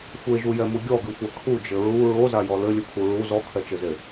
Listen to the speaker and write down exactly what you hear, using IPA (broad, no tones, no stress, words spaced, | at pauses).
xʷeʒujɛmu ɡʲɔɡɨxʷa kʰud͡ʒɘ ɹu ɹozajɔ lɘlʲukʰu ɹu zɔkʰɛt͡ʃɘze